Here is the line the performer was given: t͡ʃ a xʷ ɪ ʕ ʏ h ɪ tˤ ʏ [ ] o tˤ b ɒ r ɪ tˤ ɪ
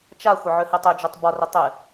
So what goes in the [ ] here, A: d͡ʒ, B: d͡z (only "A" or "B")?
A